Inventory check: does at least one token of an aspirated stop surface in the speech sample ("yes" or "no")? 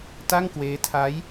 yes